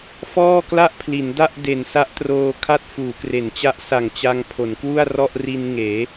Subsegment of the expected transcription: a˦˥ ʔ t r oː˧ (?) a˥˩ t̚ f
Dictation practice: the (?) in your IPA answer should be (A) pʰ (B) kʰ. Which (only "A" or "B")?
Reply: B